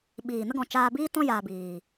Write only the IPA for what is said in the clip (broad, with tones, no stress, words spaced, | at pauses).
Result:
ɓiː˨nə˧ɡɔ̃˨ t͡ʃaː˧biː˦tɔ̃˦ jaː˧biː˨